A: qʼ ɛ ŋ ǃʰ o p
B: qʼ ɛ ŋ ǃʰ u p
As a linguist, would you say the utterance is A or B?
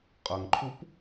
B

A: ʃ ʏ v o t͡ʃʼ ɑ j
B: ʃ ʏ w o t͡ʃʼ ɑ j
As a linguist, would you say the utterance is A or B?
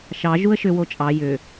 B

